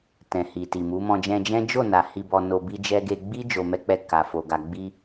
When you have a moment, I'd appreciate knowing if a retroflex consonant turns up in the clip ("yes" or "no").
no